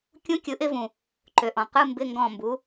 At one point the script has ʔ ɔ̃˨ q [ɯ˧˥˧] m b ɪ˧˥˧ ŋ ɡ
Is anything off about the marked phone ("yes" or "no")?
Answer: no